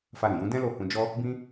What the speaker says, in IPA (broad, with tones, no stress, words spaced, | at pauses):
fa˧ɾĩ˨jũ˨˦ dɛ̃˦lo˦˨ hũ˧ d͡ʒɔ˦ | bĩ˦